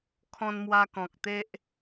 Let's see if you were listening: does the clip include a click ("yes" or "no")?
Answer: no